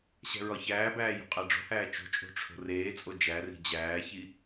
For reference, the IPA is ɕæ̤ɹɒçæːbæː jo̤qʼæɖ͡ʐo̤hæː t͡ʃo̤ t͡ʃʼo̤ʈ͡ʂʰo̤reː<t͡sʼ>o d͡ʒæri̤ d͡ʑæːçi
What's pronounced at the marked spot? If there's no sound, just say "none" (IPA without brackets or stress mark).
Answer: t͡sʼ